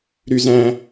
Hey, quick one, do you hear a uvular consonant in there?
no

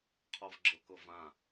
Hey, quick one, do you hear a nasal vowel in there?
yes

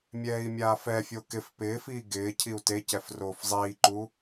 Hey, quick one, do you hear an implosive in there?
no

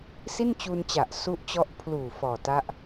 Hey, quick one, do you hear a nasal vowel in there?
no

